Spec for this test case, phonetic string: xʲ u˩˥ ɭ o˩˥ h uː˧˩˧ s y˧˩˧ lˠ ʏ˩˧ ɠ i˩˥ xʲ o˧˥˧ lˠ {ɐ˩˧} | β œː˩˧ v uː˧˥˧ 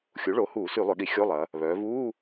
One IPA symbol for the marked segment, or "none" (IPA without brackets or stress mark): ɐ˩˧